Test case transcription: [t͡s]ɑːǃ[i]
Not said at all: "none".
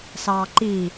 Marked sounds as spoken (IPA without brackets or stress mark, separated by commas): s, i